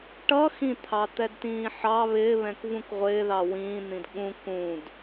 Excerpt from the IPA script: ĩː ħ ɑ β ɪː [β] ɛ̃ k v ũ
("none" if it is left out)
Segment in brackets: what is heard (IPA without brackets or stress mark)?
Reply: β